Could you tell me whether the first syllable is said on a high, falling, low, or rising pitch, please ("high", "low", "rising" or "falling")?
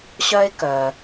high